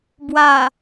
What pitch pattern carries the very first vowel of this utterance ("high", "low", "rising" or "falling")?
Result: low